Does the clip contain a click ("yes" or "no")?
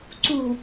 yes